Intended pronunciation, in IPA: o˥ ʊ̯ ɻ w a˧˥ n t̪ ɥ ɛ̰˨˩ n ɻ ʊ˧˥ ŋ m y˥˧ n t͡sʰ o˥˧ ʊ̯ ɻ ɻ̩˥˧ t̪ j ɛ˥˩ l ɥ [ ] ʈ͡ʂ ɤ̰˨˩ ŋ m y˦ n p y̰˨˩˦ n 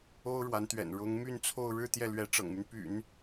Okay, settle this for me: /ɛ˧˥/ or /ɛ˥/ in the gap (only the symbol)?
ɛ˧˥